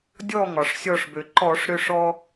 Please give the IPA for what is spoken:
dʲ ɔ˦˨ ŋ ɒ˩ ʂ sʲ ɔ˦˨ ʂ b ø˩ ǃ ɔ˧˩˧ ʂ ɾ ø˦ ʂ ɔ˦

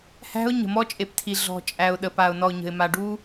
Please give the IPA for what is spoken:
h æ̤˦ ʊ̯ ɲ ə̤˨ m ɔ˦ t͡ʃʼ e˨ p tʰ i˨ ɮ ɔ̤˨ t͡ʃʼ æ˨ ʊ̯ ɗ ə˨ p a˨ ʊ̯ n ɔ˨ ʊ̯ ɲ ə̤˨ ɪ̯ m a˨ ɖ u˦

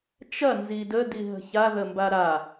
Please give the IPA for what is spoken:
t͡ʃ ɐ n z i d ə d i ɦ ə̤ ç a ð ə m b a ɾ a

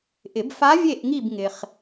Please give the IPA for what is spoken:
ʔ ɪ˨˩˦ b f a˧˥ vʲ e˦˨ ʔ ŋ i˦˨ b ŋ ɪ˨ χ

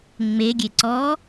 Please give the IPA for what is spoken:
ŋ͡m e ɡʲ e ǀ ɔ

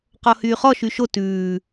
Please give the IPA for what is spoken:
q ɔ h yː χ ɔ ʃ y ʃ o t ʉː

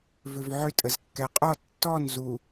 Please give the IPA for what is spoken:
v ʏ v ʕ ʏ tʼ ə z kː ɛ qʼ ɔ tː ɔ n z u

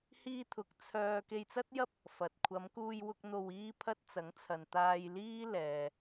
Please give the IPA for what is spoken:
h iː˧ t̪ʰ ʊ˨ k̚ t͡sʰ œː˧ k e˧ j t͡s ɐ˥ t̚ j ɐ˥ p̚ | f ɐ˨ t̚ kʷʰ ɐ˨˧ m k uː˧ j w ʊ˧ k̚ n̪ o˨ w iː˧ pʰ ɐ˧ t̚ t͡s ɐ˨˥ ŋ t͡sʰ ɐ˨ n t̪ aː˧ j l iː˥ l ɛː˨

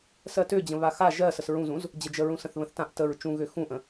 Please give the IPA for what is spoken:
s ɜ t ø d͡ʑ ə̃ β a x a ʒ ɜ s ə s ɹ ũ z ũ z | d͡ʑ ə d͡ʒ ə ɹ ũ s ə̃ θ β ə̃ θ t ã ʔ t ə ɹ t͡ʃ ũ ɣ ø x ũ ʔ ə̃

